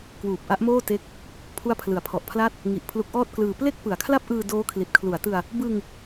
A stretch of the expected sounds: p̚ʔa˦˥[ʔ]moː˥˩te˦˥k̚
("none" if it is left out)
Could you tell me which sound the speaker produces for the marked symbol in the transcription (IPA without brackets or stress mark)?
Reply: ʔ